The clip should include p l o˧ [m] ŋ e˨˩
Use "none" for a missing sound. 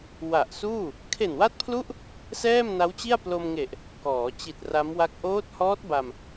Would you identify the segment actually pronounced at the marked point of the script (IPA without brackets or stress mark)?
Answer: m